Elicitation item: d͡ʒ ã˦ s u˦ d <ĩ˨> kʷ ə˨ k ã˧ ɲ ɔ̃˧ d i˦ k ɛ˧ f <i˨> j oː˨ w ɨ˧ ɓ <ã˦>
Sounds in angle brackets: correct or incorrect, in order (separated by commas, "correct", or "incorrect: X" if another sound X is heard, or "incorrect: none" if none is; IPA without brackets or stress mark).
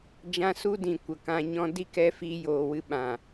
correct, incorrect: i˧, incorrect: ã˨